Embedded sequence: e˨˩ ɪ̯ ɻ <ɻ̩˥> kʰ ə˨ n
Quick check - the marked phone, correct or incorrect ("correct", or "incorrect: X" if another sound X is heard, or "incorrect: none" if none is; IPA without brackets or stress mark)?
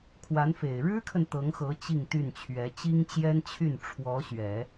correct